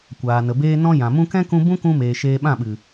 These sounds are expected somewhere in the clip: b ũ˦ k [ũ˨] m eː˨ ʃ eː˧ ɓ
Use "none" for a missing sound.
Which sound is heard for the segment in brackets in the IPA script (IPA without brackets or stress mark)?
ũ˧